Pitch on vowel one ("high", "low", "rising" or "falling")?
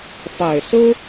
low